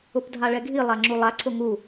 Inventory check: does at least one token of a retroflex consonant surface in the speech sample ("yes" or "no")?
yes